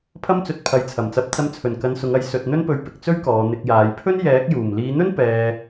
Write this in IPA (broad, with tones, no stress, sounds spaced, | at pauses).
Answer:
pʰ ɐ˥ m t͡s ɵ˧ t̚ pʰ ɐ˨ j t͡sʰ ɐ˨˩ m t͡s ɐ˨˥ p̚ t͡s ɐ˧ m t͡sʰ ɵ˨˩ n k ɐ˧ n s ʊ˨˧ ŋ ɐ˨˥ j s ɵ˧ t̚ n̪ ɵ˥ n p ɵ˧ ɥ p ɪ˨ k̚ t͡s ɵ˥ ɥ k ɔː˨˧ n̪ ɪ˧ k̚ j aː˨˧ j pʰ ɵ˥ n j ɛː˨˥ k̚ j uː˨˩ m l iː˨˧ n̪ ɵ˥ n p ɛː˧